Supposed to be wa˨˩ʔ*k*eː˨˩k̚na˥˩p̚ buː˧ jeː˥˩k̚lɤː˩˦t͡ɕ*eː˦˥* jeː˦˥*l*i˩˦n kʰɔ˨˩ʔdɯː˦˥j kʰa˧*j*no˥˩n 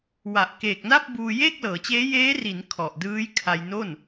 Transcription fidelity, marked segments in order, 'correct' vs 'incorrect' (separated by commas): correct, correct, incorrect, correct